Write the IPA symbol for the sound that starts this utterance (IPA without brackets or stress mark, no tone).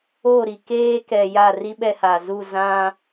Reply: o